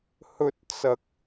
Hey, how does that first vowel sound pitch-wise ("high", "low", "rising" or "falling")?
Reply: rising